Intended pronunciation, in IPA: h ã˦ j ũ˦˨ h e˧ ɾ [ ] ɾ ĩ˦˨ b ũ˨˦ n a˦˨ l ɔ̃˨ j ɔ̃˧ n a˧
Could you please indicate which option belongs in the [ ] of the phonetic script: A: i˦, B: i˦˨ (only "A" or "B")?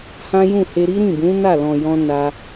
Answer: A